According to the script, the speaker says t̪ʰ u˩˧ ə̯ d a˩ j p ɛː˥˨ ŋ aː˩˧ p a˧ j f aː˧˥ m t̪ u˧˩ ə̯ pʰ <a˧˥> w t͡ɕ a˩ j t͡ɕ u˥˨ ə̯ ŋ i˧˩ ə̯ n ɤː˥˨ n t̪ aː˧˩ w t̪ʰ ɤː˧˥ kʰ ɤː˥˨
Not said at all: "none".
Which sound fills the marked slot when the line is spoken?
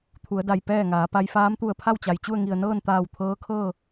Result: a˥˨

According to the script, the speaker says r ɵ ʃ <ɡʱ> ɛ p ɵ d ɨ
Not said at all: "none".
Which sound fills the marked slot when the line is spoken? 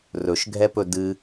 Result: ɡʱ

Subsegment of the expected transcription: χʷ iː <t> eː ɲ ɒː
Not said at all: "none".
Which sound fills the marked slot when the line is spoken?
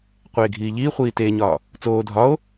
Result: t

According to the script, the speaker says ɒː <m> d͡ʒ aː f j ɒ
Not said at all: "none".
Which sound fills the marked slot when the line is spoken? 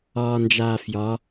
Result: n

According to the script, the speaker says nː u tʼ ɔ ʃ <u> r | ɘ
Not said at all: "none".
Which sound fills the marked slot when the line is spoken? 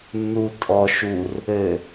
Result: u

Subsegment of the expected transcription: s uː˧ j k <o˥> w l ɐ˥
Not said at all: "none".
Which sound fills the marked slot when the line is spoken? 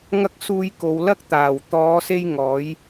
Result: o˨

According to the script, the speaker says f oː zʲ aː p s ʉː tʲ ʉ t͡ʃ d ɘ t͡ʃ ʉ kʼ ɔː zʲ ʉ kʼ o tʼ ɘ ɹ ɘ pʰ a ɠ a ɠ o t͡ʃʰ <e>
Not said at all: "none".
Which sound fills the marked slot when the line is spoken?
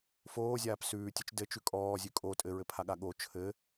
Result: ɘ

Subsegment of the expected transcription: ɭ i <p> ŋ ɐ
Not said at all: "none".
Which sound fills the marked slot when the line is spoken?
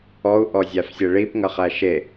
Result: p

